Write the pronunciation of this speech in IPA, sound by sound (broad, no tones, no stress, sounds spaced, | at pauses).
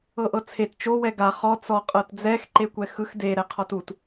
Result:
ɤ ʔ ɤ t͡sʰ e t t͡ʃ o w ɛ ɡ a χ ɔ t͡s ɔ qʼ ɤ t d͡z ɛ x ǃ e kʷ ɛ x ɯ x d e ɾ ɛ qʰ ɔ t u t